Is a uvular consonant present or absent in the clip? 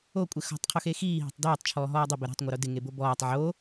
present